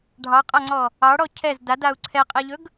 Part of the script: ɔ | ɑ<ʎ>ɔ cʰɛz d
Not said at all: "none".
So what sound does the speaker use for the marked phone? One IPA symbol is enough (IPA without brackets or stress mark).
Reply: ɽ